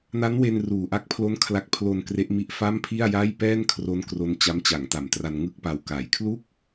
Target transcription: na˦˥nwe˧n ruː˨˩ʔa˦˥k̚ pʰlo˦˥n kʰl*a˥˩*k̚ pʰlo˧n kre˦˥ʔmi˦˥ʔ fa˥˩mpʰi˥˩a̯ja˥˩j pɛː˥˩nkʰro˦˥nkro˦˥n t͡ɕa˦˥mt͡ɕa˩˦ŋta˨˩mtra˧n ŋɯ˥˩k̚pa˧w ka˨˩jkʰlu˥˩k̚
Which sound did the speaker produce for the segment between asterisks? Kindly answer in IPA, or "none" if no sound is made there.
a˥˩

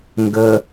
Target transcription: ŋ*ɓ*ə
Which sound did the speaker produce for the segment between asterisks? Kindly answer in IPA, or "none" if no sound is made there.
ɡ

